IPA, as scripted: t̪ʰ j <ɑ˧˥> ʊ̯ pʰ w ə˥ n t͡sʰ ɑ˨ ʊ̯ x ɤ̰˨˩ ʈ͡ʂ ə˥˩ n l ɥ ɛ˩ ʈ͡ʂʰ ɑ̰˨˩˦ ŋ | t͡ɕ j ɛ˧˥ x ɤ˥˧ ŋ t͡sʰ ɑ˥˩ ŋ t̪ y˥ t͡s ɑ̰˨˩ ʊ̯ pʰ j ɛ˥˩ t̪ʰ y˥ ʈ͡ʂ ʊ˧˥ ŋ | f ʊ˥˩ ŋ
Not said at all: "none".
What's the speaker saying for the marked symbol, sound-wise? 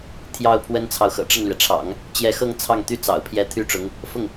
ɑ˥˩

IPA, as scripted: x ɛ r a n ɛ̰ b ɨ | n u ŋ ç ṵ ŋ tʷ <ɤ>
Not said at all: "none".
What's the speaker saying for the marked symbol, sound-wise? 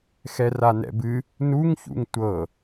ɤ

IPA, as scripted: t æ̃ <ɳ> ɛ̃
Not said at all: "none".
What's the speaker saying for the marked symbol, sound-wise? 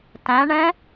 ɳ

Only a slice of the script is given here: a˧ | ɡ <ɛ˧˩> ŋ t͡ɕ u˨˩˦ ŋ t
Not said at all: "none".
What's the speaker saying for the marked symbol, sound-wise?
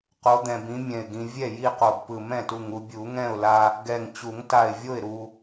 ɛ˧˩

